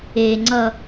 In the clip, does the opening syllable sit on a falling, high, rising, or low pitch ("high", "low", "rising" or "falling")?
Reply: low